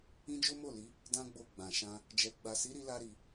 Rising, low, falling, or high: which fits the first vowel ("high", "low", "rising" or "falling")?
high